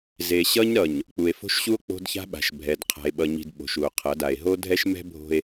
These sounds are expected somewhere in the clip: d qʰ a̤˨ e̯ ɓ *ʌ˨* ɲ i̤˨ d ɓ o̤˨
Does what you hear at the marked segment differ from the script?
no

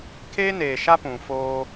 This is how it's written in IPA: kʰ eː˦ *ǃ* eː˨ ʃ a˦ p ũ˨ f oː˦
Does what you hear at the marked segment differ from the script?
yes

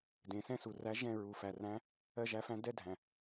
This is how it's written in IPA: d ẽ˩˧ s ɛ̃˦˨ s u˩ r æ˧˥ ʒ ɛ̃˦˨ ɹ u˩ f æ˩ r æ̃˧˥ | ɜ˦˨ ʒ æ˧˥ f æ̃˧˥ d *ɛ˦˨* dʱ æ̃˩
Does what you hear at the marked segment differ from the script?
no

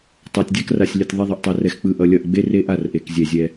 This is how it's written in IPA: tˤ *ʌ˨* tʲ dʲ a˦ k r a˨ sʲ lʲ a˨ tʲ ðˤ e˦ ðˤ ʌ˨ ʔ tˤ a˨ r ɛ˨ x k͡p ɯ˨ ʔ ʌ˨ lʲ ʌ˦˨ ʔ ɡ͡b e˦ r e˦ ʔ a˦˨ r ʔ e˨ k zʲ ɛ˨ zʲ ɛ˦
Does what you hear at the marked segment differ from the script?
yes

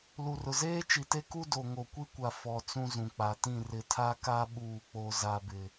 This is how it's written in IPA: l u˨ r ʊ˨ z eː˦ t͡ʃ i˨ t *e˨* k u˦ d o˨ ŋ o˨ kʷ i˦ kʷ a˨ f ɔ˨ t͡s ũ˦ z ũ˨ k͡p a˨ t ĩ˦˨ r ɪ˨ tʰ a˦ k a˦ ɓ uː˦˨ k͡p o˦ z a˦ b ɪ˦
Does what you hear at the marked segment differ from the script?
yes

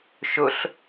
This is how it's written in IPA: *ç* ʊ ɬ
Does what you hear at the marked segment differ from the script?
yes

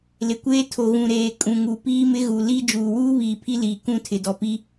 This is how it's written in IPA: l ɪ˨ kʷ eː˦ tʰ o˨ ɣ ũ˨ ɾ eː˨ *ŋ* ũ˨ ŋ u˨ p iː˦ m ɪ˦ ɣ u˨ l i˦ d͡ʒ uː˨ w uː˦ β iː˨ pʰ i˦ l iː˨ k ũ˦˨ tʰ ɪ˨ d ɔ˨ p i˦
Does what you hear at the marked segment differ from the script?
yes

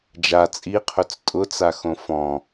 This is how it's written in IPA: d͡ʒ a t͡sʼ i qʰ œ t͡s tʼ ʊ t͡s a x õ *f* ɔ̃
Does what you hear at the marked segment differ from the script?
no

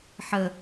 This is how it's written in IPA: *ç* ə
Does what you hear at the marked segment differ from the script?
yes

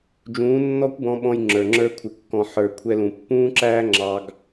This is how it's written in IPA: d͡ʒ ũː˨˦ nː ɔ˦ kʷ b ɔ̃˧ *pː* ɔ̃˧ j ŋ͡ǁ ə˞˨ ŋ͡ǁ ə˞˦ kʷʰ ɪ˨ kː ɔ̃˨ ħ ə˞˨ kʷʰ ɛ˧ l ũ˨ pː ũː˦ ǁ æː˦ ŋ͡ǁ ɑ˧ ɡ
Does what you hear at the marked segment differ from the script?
yes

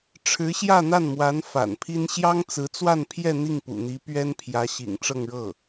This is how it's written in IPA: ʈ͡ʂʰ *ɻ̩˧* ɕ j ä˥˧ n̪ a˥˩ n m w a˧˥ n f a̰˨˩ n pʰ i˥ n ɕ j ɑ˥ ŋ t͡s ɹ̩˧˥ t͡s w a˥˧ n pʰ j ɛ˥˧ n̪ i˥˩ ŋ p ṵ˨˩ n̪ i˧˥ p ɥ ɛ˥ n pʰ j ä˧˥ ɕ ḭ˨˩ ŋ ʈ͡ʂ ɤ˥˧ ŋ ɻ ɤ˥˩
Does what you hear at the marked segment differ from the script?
yes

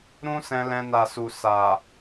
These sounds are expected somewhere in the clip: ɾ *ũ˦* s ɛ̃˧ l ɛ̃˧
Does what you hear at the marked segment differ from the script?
no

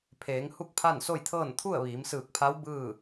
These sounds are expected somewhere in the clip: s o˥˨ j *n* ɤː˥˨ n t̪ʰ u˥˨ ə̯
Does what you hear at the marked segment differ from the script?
yes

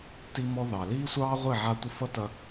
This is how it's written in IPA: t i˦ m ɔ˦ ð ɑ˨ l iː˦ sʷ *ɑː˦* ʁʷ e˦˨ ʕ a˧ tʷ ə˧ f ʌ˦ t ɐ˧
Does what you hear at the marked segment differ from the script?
no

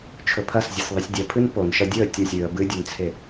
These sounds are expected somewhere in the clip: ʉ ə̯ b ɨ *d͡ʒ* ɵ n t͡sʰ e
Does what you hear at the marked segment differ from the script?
yes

